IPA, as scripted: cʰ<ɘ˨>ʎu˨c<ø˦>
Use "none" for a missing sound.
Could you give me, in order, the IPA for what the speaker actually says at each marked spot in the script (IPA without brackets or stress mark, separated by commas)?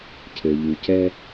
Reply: ɘ˨, ɛ˦